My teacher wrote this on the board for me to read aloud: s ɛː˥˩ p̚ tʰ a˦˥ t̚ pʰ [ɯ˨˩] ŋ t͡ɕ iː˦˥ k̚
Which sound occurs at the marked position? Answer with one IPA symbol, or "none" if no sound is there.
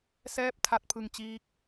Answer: ɯ˧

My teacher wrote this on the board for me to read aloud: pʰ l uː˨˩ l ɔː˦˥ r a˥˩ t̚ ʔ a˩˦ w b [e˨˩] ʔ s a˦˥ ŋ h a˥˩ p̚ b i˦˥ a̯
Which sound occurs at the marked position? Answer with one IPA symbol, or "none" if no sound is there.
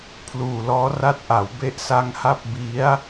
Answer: e˦˥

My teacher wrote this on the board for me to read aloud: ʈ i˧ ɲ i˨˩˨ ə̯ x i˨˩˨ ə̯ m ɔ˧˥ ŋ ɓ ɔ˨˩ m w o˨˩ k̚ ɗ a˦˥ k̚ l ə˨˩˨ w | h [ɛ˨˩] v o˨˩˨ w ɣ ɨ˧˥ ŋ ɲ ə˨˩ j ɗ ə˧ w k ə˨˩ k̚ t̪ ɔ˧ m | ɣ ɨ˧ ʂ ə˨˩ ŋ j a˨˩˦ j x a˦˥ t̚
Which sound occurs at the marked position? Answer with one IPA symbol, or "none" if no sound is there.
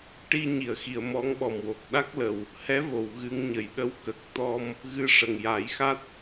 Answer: ɛ˧˥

